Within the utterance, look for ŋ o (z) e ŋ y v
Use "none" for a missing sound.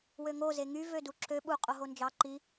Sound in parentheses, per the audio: z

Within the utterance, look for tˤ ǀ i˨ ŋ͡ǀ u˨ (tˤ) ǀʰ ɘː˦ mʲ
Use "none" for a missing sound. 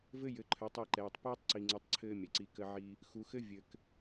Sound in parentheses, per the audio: tˤ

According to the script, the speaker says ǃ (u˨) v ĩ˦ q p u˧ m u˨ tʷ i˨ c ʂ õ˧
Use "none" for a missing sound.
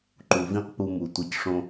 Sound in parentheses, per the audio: u˨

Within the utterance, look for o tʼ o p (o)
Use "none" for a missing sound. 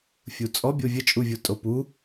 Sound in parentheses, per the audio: u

